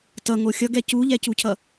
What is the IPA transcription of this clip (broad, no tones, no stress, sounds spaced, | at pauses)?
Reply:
t ʌ ŋ o xʲ ʌ ɡ ɛ c u ʎ ɛ c u cʰ ʌ